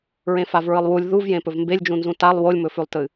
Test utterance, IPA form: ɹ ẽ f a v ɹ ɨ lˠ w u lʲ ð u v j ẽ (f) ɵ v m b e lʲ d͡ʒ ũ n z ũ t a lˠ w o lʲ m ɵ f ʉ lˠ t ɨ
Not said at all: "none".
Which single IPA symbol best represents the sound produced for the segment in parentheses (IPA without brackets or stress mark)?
p